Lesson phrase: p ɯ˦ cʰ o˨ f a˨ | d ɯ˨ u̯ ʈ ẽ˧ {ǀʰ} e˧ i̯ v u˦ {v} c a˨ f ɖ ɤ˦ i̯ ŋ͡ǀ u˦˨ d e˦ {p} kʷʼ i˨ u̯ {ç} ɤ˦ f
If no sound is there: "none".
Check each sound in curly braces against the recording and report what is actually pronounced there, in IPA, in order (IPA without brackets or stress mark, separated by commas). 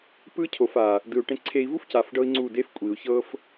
ǀʰ, f, f, ç